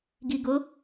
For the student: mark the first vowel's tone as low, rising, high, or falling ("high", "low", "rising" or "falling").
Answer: low